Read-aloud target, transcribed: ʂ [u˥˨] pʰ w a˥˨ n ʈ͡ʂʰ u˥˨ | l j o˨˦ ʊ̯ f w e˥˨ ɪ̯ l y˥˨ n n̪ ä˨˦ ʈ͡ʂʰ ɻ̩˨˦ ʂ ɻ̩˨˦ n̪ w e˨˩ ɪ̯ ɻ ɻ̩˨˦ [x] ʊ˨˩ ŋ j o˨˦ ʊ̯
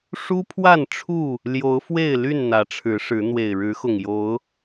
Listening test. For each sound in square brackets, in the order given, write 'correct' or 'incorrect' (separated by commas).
incorrect, correct